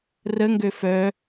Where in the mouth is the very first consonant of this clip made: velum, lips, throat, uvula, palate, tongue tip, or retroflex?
tongue tip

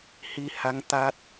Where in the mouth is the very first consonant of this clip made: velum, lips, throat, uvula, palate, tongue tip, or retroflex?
throat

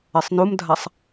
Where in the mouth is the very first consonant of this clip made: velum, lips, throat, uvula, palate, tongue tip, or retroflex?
tongue tip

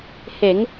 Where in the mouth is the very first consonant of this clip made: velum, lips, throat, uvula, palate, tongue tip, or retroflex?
throat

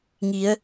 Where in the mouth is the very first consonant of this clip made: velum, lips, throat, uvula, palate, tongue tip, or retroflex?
velum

